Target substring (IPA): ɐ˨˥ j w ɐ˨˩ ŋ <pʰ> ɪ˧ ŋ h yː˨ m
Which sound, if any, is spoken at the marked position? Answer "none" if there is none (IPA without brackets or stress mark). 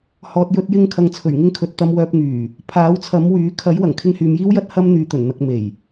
kʰ